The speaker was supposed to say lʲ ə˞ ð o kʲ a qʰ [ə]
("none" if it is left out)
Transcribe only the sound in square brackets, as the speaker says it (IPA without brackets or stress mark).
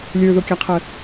ə